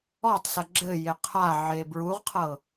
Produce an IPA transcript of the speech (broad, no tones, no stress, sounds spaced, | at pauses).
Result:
ɔ tˤ s ɐ ɡ͡ǁ ɘ j e qʰ a ʕ e b ɹ u ʁ qʰ ɤ